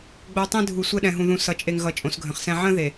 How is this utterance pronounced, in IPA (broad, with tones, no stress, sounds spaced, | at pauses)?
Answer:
ɡ͡b o˨ tˤ ẽ˦ dʱ u˨ sʷ ɛ˦ ɗ ɛ̃˨ ɦ ũ˨ ð ũ˨ s ʌ˨ t͡ʃʼ e˨ ŋ ɣ ʌ˨˦ t͡ʃʼ õ˨˦ s ɡʱ ə̃˨ χ s ɛ̃˦ ʕ ə̃˦ ð e˨